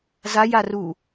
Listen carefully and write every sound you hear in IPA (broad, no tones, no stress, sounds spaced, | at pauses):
z a j a r u